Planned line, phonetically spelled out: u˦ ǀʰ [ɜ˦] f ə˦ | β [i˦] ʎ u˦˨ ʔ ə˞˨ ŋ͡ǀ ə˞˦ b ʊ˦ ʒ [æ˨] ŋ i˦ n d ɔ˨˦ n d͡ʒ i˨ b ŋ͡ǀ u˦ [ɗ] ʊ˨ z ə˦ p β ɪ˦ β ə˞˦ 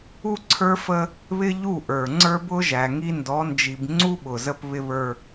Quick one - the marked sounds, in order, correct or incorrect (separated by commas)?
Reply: incorrect, incorrect, correct, incorrect